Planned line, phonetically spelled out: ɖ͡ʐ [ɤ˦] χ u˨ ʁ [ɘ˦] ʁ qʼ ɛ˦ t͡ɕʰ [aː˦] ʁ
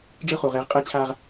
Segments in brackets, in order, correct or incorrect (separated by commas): incorrect, incorrect, correct